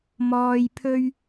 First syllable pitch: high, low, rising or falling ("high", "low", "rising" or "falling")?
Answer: low